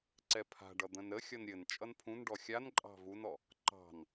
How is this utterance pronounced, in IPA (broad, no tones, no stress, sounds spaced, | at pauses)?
ǀ ɛ pʰ a̤ ɖ ʌ d̪ ə̃ n ɾ ə xʲ ʌ n ɾʲ ɘ n t͡ʃʼ ʌ n pʰ ũ n ɖ ɔ xʲ a n ǃʼ ɑ̤ v u n ɔ | ǃ ɑ̤ n